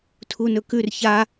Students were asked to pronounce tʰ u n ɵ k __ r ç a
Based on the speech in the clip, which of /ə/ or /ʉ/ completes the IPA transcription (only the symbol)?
ʉ